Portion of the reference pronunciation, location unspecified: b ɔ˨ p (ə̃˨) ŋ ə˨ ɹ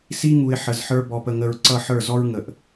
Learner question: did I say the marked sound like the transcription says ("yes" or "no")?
no